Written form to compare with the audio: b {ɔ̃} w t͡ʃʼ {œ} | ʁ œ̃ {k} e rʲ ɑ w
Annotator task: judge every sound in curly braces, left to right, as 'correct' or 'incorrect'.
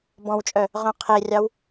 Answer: correct, correct, incorrect: qʰ

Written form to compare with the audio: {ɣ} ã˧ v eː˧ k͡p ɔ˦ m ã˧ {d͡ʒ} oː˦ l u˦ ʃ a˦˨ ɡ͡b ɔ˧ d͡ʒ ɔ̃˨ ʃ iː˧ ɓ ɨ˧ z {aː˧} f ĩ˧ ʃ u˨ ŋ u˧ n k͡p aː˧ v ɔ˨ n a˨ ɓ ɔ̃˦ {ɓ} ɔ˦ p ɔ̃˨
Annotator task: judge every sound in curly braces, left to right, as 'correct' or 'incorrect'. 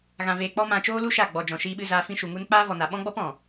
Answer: correct, incorrect: t͡ʃ, correct, incorrect: ɡ͡b

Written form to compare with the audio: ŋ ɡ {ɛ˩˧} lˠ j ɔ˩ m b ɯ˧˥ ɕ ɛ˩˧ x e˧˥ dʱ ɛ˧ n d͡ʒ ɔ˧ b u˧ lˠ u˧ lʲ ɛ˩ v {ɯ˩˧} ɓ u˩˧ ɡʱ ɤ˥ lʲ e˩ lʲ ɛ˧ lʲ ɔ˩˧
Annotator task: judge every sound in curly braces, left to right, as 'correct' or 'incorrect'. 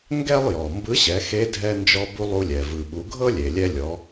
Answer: incorrect: ɛ˥, incorrect: ɯ˩

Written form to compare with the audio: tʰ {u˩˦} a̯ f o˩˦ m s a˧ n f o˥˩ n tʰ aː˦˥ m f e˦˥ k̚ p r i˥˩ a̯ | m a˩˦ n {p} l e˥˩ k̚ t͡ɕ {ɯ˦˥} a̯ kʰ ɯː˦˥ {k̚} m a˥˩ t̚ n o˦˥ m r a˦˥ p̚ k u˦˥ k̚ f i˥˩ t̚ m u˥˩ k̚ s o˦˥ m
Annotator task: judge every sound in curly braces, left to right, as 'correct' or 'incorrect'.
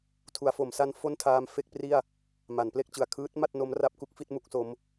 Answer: correct, correct, incorrect: ɯ˩˦, incorrect: t̚

